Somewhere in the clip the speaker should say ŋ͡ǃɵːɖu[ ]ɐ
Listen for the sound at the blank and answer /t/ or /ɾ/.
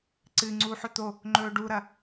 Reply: ɾ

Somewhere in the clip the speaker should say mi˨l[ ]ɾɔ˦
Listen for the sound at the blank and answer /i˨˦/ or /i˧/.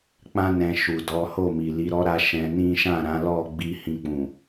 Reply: i˨˦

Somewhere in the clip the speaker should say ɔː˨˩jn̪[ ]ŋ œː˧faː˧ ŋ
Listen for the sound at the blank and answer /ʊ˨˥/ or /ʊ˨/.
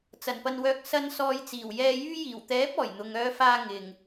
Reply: ʊ˨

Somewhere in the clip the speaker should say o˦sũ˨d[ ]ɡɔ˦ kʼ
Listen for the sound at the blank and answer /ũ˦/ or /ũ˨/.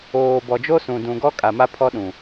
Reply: ũ˨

